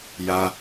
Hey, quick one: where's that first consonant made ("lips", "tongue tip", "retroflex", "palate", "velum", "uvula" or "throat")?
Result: palate